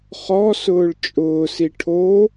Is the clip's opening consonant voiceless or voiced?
voiceless